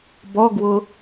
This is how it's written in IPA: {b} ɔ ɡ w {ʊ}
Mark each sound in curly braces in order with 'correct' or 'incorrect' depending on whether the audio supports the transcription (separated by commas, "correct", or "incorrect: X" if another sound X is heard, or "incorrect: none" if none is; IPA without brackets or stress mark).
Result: correct, correct